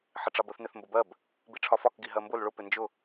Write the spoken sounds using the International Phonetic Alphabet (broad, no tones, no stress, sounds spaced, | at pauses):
ħ ɪ ʈ͡ʂ ɑ b ə θ n ɪ θ m b ə b ɜ b | b i ʈ͡ʂʰ ɒ f ɒ k ɡ i ɦ ɜ m b ʊ l ɭ ʊ p ɪ n d͡ʒ ʊ